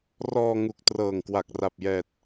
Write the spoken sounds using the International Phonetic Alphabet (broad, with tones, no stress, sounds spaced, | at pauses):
r ɔː˧ ŋ u˨˩ k̚ t r ɤː˨˩ ŋ k w a˨˩ k̚ r a˨˩ p̚ j ɛː˨˩ t̚